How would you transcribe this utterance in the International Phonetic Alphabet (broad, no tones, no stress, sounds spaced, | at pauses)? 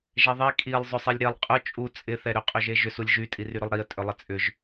ʒ ɛ ðˤ i kʼ i lˠ zˤ ʏ sˤ i lʲ ɾ e lˠ qʼ ʊ t͡ʃʼ u t͡sʼ ɪ θ ɛ ɾ ʏ qʼ ø ʒ e ʒ ʏ s u lʲ ʒ y tʼ i r y ɾ ʏ lˠ ɾ i ə̯ tʼ ʏ lˠ ɪ t͡sʼ ʏ ʒ